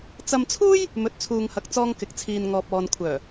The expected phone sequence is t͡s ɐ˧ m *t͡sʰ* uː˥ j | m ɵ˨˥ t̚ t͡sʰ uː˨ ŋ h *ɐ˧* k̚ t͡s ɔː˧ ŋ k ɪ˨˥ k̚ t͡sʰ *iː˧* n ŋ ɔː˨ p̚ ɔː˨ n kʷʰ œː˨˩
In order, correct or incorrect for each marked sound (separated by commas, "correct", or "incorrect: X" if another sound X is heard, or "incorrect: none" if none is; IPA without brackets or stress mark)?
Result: correct, incorrect: ɐ˨˥, incorrect: iː˨